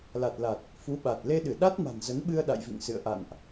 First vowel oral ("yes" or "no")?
yes